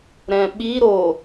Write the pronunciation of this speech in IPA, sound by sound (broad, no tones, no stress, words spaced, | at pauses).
ɾɛ̃ɓi ɾo